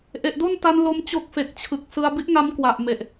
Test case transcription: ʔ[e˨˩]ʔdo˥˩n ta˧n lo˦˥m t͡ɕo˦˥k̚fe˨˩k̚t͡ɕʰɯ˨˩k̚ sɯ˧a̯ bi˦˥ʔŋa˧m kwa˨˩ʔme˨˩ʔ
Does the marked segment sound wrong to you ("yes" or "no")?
no